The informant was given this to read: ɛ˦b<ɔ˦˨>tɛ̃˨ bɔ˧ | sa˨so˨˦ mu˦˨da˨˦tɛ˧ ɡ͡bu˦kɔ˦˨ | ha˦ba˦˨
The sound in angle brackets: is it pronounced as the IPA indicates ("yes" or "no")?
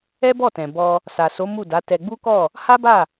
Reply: yes